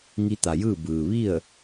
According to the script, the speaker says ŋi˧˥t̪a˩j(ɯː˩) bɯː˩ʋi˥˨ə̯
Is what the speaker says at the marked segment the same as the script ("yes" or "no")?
no